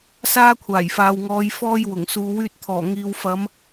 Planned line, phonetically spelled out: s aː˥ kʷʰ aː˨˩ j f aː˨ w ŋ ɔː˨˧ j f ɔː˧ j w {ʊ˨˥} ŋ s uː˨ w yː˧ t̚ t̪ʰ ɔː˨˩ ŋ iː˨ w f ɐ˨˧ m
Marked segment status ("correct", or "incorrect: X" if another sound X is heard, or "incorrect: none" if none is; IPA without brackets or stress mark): incorrect: ʊ˨˩